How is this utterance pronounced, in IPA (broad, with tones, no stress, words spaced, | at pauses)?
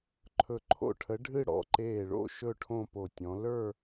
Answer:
ǃʰɵ˧˩ǃʰo̰˥˧ʈʰə˨˦ ɖʱɨ˥˧ ɽɔ̰˧˩ǃeː˧˩ɭo̰˥˧ ʃɵ˥˧ʈʰõ˥˧po˧˩tʲɔ̃˨˦ lə˞˥˧